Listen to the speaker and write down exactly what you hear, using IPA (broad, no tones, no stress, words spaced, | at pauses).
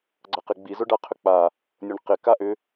ɡ͡ǀaqɪɡ͡bi zʊɖaqʰʏk͡pa | nʲʊɳqɪ kaʔʏ